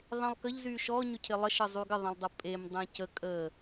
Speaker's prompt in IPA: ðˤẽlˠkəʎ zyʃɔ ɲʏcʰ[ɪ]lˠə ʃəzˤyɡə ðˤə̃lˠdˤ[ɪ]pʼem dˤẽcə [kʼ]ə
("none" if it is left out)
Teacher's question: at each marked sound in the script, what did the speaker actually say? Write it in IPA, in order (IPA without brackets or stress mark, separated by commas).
ɪ, ə, kʼ